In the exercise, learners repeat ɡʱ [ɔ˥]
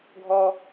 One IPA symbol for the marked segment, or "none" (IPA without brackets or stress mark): ɔ˥